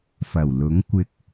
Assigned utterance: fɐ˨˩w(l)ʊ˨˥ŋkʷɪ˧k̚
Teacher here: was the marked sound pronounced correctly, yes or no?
yes